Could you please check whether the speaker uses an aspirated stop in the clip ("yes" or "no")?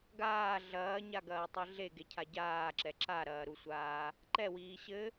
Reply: yes